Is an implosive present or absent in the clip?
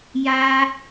absent